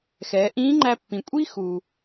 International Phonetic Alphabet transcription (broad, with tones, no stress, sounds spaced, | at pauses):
x ɛː˩˧ ʔ ĩː˧˥ ŋ͡ǃ æ˧ pː ĩ˩ kʷʼ i˥ x u˩